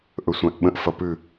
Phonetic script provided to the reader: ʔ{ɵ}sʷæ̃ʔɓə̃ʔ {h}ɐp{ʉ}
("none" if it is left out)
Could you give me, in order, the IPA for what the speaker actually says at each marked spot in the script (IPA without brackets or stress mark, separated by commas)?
ɵ, f, ʉ